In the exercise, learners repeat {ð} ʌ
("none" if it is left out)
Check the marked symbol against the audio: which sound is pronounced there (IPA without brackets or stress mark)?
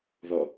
ð